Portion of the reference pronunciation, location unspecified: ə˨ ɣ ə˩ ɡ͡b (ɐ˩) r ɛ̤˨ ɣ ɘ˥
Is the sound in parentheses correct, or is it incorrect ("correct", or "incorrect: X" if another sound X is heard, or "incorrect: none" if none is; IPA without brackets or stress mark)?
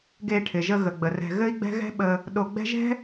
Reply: incorrect: ə˩